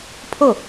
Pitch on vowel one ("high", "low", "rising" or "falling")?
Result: falling